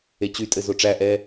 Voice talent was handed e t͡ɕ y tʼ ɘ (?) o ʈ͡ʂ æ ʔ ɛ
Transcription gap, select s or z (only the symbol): z